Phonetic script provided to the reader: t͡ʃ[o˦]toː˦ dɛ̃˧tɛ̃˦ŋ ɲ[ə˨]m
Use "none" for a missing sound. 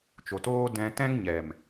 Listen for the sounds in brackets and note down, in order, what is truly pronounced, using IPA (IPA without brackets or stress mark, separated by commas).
o˨, ɛ˨